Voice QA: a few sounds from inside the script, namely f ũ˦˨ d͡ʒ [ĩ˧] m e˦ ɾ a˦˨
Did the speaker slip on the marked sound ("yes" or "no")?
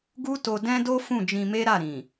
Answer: no